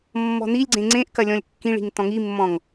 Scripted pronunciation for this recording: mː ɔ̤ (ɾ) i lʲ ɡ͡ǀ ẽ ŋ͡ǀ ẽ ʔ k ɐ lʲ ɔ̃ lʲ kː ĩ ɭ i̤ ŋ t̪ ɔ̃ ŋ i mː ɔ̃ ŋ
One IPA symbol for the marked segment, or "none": n̪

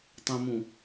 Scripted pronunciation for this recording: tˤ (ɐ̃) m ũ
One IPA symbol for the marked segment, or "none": ɐ̃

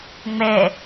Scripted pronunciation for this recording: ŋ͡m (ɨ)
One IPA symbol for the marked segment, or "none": ɛ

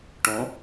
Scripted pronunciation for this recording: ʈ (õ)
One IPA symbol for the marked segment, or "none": õ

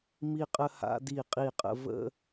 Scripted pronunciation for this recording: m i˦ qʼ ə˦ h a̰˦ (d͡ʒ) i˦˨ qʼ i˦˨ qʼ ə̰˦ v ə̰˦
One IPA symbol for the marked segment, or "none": d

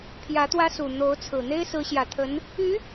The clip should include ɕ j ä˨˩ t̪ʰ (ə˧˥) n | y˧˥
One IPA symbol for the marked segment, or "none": ə˧˥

